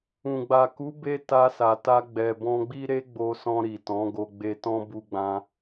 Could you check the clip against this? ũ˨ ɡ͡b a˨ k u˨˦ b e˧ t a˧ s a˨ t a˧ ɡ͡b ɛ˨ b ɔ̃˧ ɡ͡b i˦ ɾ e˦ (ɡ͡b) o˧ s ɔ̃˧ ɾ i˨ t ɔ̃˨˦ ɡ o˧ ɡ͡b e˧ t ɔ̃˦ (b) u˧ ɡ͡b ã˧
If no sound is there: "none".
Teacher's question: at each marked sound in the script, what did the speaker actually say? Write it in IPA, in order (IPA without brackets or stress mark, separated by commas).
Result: ɡ͡b, b